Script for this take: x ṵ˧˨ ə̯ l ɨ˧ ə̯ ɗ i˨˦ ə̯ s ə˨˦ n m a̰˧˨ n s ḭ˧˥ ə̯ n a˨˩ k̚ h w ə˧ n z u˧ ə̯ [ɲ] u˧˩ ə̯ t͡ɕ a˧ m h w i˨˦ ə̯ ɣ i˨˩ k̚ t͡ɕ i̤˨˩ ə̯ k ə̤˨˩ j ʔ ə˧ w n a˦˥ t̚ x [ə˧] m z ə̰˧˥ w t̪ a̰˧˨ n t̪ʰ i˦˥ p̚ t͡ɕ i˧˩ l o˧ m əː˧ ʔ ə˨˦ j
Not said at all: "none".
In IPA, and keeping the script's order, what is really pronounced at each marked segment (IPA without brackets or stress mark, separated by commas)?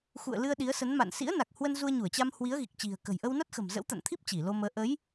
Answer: ɲ, ə̤˨˩